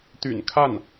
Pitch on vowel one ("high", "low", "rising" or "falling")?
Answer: low